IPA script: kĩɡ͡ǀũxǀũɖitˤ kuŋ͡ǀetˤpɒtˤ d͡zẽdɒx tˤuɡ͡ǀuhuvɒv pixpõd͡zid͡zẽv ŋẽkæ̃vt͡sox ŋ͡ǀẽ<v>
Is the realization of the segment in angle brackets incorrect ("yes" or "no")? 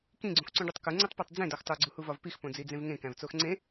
yes